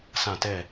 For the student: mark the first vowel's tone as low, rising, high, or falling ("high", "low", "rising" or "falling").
falling